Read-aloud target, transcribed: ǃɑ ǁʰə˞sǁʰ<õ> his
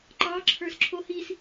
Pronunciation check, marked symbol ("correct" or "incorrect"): incorrect